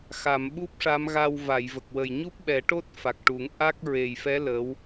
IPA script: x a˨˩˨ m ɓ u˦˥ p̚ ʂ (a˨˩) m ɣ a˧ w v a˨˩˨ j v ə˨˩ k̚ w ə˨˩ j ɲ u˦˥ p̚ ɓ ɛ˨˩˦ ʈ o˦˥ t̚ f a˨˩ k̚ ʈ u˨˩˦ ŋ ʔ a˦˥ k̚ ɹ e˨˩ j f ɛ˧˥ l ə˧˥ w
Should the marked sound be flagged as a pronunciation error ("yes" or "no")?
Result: yes